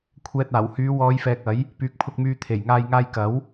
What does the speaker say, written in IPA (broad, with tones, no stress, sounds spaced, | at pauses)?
kʷʰ ɛː˨ t̚ aː˨˩ w h yː˨˧ w ɔː˨˧ j f ɛː˨ k̚ ɐ˨˥ j | p yː˨ k̚ pʰ ʊ˧ k̚ m yː˧ t̪ʰ e˨˩ j ŋ aː˨ j ŋ aː˧ j k ɐ˨˥ w